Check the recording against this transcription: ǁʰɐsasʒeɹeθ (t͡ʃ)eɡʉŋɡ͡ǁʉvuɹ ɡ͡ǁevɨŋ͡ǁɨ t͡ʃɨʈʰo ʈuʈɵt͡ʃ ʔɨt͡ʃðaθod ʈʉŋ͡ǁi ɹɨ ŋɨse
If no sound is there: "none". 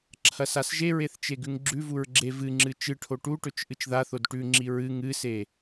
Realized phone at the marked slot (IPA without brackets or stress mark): t͡ʃ